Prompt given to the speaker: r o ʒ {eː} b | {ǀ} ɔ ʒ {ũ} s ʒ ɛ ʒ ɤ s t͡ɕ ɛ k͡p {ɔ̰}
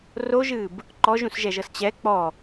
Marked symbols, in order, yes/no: no, no, yes, no

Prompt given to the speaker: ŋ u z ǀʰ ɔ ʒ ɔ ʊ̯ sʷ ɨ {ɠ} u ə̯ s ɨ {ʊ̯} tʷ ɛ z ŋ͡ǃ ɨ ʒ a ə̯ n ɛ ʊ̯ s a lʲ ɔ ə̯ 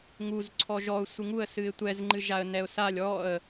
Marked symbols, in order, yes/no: no, no

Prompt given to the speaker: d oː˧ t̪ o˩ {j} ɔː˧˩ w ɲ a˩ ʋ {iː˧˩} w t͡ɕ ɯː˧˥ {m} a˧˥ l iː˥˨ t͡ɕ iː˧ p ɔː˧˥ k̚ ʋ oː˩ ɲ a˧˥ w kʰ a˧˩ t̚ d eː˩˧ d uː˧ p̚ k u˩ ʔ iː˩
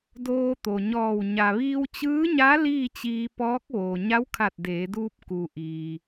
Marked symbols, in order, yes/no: no, no, no

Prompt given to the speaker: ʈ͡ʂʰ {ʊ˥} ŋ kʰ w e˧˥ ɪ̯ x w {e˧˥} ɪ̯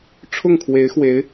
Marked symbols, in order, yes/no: no, yes

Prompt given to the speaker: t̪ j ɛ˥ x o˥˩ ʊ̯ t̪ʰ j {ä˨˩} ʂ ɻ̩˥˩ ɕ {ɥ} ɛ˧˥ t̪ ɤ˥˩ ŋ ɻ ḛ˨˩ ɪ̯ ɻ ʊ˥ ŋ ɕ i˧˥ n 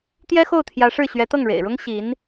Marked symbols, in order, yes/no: no, yes

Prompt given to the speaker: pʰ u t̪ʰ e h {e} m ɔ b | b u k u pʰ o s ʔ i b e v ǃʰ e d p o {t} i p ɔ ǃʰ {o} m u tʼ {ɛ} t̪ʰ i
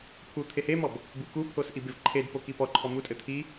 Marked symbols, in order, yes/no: yes, no, no, no

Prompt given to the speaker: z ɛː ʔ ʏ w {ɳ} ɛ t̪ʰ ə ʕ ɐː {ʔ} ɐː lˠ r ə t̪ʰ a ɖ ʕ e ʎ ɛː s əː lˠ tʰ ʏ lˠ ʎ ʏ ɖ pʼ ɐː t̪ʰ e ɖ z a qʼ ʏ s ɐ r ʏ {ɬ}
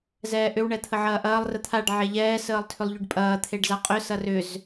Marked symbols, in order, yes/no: yes, yes, no

